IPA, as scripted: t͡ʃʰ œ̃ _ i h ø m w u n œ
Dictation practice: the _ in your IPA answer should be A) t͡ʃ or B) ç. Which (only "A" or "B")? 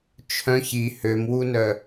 B